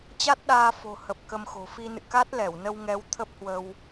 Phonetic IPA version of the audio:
t͡ɕ a˦˥ t̚ ɗ aː˧ f o̤˨˩ h ə˨˩ p̚ k ə˧ m x o̤˨˩ f i˧ n ɨ̰˧˨ k a˦˥ t̚ l ɛ˧˩ w n ə˧ w ŋ ɛ˨˦ w t̪ʰ ə˦˥ p̚ h w ə˧ w

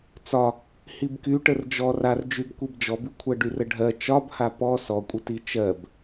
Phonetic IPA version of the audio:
t͡s ɒ | h i b k y ʈ ə r d͡ʒ ɔ r a r d͡ʒ y b kʷ i b d͡ʒ ɔ b y kʷʰ ɜ ɖ y r ə ɖʱ ɜ t͡ʃ ɒ b h a p ɔ s ɔ kʷʼ ə t i t͡ʃ ɜ b

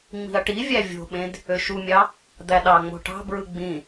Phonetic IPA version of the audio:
ŋ͡m i̤ ɐ̯ ʈ i vʲ æ vʲ o̤ ɓ ẽ d | ø ʃ u mʲ ɑ | d̪ æ ɗ ɑ ŋ͡m o̤ ʈ ɑ̤ b ɹ ɯ ɡ͡b ĩ

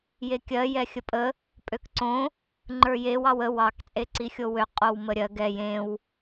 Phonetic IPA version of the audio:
j e kʲ ɜ j ɛ xʲ ə pʼ ə | pʼ ø k ǀ õ | ŋ͡ǃ ə˞ j e w ɑ w ə w ɑ k t͡sʼ e ǀ i xʲ o w ø qʼ o w m ə ɾʲ ɜ ɡ ɛ j ẽ w

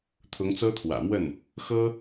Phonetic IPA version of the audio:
t̪ʰ ʊ˧˥ ŋ t͡s ɤ˥ t̪ʰ w ä̰˨˩ m w ə˥˩ n | x ɤ˥

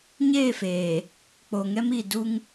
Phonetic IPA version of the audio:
ɲ eː˦˨ f eː˨ | k͡p o˨ ŋ ɛ˦ m i˨ d u˦ ŋ

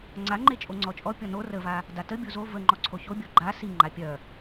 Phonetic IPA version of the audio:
ŋ͡ǀ a ŋ͡ǃ e t͡ʃʼ o ŋ͡ǀ ɔ t͡ʃʼ ɔ pʲ ɔ n o r ə v a | d a t ə bʲ o z o v ə ŋ͡ǃ ɔ ǀʰ o ç o bʲ ɔ ɡ͡ǃ a s i ŋ͡ǃ a pʲ œ

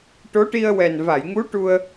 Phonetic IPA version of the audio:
ʈ o˧˥ ʈ i˧ ə̯ w ɛ˨˩ n v a˨˩˨ j ŋ u˧˥ ʈ u˧ ə̯

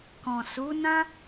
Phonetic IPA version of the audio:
k ɔ̃˨ s u˨˦ n ã˦

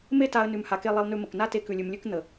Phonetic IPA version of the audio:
m e˦ t a˧ ə̯ n ʉ˧ m h a˧ k e˦ lˠ e˧ lˠ n ʉ˧ m ə˨ k n a˦ t e˧ k ʉ˧ lʲ ʉ˧ m lʲ ʉ˦ k n̪ ə˨

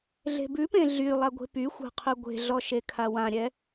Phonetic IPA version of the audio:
ɮ e̤ b ʉ p ẽ ɮ y lˠ a ɡʷ e̤ p y xʷ a̤ qʰ ʉ ɡʷ e̤ ɮ ɔ ʃ e kʰ a w ã ɾʲ ɛ

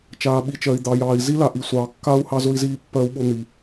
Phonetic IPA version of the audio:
t͡ʃ aː˩ ɓ i˩ t͡ʃ ɜ˩ i̯ d̪ ɑ˩ j ɑː˩ i̯ z i˥ l a˩ ʔ i˩ sʷ ɑː˩ kː a˥ u̯ h ɑ˥ z ʊ˥ i̯ z iː˥ pː ɜ˥ u̯ ɓ ʊ˥ n̪ i˩

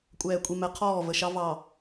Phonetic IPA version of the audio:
kʷʼ ɛː˨ kʷʼ i˨ m ɛ˨˦ qʰ ɔː˦˨ v ə˨ ʃ ɑ˦ v ɑ˨

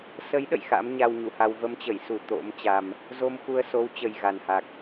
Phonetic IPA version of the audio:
s ə˨˦ j ɗ ə̰˧˨ j x a̰˧˥ m ɲ a˧ w ɲ u˧˩ h a˧ w v ə˧ m t͡ɕ ə˧˩ j s u˧˩ t̪ o̰˧˥ m t͡ɕ a˧ m | z o˧ m x u˧ ə̯ s o˨˦ w t͡ɕ ə˨˩ j ɣ a˨˩ n h a˨˩ k̚

